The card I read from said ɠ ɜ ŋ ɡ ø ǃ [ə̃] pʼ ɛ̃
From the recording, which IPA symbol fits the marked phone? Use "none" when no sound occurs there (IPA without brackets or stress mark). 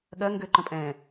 ə̃